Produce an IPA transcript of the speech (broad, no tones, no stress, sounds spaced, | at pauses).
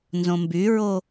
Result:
n z õ m b y ɹ o